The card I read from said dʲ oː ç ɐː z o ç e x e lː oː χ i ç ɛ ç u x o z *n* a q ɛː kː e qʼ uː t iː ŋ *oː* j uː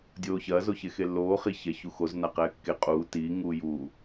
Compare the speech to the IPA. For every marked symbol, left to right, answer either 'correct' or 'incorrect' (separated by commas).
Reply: correct, incorrect